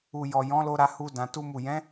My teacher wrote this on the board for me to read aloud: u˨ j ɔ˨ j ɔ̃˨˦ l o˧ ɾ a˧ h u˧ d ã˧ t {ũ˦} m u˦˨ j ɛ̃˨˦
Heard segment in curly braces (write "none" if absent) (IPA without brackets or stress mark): u˦